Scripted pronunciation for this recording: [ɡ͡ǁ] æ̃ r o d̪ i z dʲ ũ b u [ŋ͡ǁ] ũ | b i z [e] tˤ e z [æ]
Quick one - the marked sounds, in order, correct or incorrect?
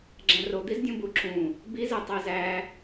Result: correct, incorrect, correct, correct

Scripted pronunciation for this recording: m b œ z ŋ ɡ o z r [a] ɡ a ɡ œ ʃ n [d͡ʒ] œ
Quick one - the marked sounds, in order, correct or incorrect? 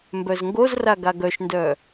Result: correct, incorrect

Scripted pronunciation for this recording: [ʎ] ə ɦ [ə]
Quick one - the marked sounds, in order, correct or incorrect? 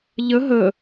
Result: correct, correct

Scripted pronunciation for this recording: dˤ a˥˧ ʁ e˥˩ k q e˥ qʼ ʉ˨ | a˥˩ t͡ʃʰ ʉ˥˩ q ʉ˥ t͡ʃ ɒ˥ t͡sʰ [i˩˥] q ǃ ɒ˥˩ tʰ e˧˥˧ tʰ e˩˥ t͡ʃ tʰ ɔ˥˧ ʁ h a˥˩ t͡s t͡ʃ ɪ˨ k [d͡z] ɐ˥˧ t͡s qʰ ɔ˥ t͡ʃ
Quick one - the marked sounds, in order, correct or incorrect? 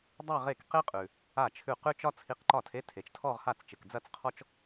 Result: incorrect, correct

